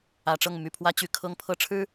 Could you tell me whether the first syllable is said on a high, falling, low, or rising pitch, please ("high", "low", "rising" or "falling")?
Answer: low